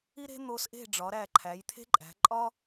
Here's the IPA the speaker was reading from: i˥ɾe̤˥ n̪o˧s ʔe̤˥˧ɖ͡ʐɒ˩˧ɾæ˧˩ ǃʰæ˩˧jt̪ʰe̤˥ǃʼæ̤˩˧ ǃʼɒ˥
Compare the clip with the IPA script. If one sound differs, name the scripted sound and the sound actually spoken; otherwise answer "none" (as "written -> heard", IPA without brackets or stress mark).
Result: none